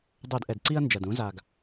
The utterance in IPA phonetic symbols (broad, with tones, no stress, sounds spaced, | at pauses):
dˤ œ˧˩˧ d ʔ ɛ˩ d ǀ i˦ ɐ̯ n d͡ʒ ɐ˩ d ũ˨˥ z a˩ ɡ